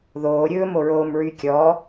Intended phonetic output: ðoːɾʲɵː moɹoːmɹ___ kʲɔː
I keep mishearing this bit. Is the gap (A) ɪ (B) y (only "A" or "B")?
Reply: B